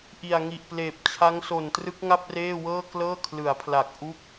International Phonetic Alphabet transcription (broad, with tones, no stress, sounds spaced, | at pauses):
ʔ i˨˩ a̯ ŋ i˨˩ ʔ p l eː˨˩ p̚ t͡ɕʰ a˦˥ ŋ s o˨˩ n t r ɯ˦˥ k̚ ŋ a˥˩ p̚ r eː˥˩ w ɤː˥˩ k l ɤː˥˩ kʰ l ɯ˩˦ a̯ pʰ l a˨˩ k̚ ʔ u˥˩ k̚